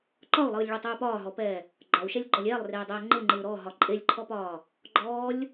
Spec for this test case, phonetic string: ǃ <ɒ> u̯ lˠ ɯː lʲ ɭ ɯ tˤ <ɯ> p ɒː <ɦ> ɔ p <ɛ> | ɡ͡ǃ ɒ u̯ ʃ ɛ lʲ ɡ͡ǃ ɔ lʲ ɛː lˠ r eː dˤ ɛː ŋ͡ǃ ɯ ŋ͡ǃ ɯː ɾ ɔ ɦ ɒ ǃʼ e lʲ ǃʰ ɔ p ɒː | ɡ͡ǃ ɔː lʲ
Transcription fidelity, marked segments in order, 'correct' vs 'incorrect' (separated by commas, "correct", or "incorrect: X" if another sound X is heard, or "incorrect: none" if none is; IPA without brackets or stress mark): correct, incorrect: ɯː, correct, incorrect: ɛː